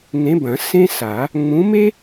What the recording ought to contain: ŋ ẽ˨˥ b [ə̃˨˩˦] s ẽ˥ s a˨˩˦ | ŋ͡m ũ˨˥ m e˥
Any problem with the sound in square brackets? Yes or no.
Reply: yes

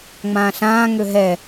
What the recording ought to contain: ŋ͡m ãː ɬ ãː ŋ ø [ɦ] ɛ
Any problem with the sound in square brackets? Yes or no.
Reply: no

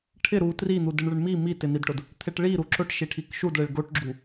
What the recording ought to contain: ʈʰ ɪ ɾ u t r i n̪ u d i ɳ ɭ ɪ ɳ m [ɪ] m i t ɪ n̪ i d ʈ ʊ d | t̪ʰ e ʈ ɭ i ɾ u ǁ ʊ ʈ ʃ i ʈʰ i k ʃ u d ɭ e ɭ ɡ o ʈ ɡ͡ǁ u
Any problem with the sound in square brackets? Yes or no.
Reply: yes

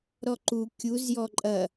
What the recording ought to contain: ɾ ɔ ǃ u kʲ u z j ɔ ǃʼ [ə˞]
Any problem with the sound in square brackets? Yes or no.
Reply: yes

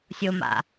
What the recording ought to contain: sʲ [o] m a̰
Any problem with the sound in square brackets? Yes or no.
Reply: no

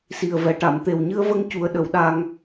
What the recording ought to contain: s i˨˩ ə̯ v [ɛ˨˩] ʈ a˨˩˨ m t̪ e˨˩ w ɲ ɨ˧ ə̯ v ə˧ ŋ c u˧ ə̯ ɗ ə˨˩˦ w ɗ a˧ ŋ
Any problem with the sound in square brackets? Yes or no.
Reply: no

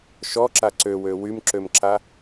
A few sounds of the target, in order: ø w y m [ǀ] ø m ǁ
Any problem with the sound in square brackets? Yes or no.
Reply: yes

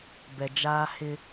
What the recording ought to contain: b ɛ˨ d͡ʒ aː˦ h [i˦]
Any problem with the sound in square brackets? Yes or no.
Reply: yes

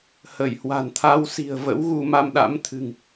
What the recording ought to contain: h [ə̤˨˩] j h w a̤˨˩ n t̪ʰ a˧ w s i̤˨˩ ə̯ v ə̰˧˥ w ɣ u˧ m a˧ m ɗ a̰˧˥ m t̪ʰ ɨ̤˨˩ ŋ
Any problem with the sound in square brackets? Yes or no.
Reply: yes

